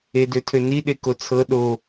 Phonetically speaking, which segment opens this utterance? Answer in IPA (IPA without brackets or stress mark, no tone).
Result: e